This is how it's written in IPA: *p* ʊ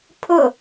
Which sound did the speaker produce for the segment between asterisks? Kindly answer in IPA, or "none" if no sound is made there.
pʰ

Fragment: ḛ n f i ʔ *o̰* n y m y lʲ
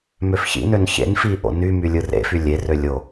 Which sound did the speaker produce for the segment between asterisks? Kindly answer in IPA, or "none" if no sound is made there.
o̰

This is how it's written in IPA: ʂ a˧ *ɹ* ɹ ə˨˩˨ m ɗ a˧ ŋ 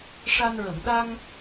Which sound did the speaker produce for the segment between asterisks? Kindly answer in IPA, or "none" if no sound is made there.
n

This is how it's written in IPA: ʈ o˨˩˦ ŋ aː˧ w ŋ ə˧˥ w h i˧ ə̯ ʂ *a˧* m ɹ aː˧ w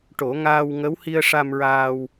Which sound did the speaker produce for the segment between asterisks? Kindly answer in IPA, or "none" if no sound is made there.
a˧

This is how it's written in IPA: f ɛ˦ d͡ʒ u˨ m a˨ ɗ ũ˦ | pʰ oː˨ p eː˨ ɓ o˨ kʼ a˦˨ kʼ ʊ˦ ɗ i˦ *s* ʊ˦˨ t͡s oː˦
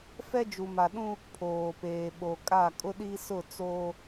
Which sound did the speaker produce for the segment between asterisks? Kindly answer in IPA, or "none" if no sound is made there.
s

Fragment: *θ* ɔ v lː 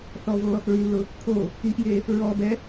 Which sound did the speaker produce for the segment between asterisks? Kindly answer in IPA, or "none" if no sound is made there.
θ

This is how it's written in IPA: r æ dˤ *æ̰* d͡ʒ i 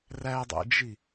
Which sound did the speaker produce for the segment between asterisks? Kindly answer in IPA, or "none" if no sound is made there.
æ̰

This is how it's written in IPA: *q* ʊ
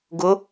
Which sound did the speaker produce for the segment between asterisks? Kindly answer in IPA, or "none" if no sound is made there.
ɡ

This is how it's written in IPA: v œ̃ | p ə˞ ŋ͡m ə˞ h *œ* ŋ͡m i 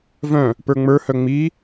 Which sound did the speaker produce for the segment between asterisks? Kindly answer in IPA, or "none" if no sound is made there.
œ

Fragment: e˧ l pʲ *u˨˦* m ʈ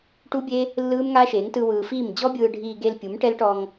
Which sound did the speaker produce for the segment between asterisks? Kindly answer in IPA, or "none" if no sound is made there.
u˨˦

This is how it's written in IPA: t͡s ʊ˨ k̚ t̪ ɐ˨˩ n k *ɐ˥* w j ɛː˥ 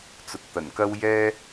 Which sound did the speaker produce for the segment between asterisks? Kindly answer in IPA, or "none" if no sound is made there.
ɐ˥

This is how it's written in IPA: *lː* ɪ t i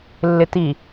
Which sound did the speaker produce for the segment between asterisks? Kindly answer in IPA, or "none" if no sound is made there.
lː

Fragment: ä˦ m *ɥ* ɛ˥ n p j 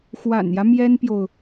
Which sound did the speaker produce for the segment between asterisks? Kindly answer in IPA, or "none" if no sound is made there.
j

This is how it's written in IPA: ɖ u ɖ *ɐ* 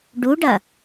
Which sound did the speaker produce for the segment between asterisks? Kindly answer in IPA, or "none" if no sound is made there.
ɐ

